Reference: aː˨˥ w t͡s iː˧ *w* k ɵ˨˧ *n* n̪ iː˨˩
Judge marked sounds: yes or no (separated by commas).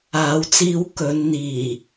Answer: yes, yes